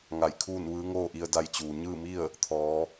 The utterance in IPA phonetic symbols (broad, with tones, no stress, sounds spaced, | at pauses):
ŋ a˧˩ j kʰ uː˥˨ n ʋ ɯː˧˥ ŋ oː˥˨ ʔ i˧ ə̯ d a˧ j t͡ɕ uː˩ ɲ ɯː˥˨ m i˥˨ ə̯ | t̪ʰ ɔː˩˧